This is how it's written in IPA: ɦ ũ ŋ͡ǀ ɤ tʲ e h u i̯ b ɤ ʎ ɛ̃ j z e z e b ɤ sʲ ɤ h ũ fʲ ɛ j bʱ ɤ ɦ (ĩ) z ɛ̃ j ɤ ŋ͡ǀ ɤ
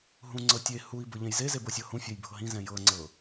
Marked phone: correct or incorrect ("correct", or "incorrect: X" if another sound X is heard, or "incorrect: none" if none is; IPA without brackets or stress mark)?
correct